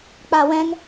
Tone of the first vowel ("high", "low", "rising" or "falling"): low